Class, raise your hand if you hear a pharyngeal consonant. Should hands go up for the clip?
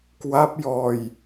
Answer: no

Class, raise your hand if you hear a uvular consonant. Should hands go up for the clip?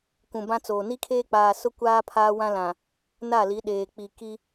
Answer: no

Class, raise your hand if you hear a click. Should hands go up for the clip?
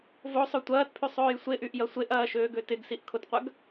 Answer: no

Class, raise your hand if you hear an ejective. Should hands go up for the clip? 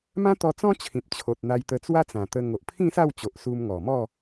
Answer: no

